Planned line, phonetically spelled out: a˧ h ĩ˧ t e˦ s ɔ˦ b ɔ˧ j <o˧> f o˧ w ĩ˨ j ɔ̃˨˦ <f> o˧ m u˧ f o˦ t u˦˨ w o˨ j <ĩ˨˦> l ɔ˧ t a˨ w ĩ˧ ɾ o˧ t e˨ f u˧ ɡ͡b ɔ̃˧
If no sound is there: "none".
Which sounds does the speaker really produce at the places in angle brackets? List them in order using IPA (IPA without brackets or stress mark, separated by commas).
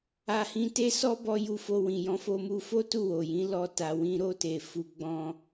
u˧, f, ĩ˨˦